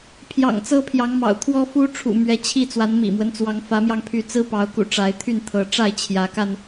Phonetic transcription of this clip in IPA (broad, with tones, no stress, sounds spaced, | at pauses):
pʰ j ɑ̰˨˩ ŋ t͡s ɤ˦ pʰ j ɑ˨˦ ŋ m ɑ̰˨˩ ʊ̯ t̪ʰ w ɔ˦ f u˦ ʈ͡ʂʰ ṵ˨˩ m ɥ ɛ˨˦ t͡ɕʰ i˥˨ t͡s w a˨˦ n m ḭ˨˩ m w ə˦ n t͡s w ɑ˨˦ ŋ f ä˨˦ m j ɑ˧ ŋ pʰ y˨˦ t͡s ɹ̩˦ p ɑ˨˦ ʊ̯ k ṵ˨˩ ʈ͡ʂ a˨˦ ɪ̯ t̪ʰ y˥˨ n t̪ʰ ɤ˨˦ ʈ͡ʂ a˥˨ ɪ̯ t͡ɕʰ j ä˨˦ k a˧ n